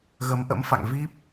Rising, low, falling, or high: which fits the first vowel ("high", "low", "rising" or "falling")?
rising